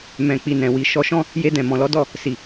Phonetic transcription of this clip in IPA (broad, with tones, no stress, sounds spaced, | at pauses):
m ɛ̃˨ k͡p i˨ n ɛ̃˨ w i˨ ʃ ɔ˧ ʃ ɔ̃˦ | j e˧ d ɛ̃˨ m ɔ̃˨ l ɔ˨˦ d ɔ˦˨ | s i˨